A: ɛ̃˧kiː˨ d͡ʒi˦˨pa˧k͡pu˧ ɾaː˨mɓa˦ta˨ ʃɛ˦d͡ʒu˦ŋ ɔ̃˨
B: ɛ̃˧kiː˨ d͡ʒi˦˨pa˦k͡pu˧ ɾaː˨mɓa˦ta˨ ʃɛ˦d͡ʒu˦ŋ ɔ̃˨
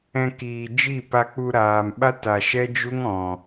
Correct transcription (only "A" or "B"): A